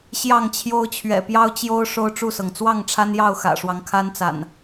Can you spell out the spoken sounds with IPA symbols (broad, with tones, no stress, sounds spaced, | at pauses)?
ɕ j ɑ˥˨ ŋ t͡ɕʰ j o˦ ʊ̯ t͡ɕʰ ɥ ɛ̰˨˩ p j ɑ˦ ʊ̯ t͡ɕ j o˦ ʊ̯ ʂ o˦ ʊ̯ ʈ͡ʂ u˥˨ s ɤ˩ ŋ t͡s w ɑ˥˨ ŋ ʈ͡ʂʰ a˦ n j ɑ˥˨ ʊ̯ x ä̰˨˩ ʂ w ɑ˦ ŋ kʰ a˦ n t͡s a̰˨˩ n